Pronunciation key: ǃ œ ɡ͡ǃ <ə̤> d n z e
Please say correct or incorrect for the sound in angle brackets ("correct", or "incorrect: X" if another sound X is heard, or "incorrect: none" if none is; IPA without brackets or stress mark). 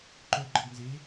incorrect: ə